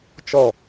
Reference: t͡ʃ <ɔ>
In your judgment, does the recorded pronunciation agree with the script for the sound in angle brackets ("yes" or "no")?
yes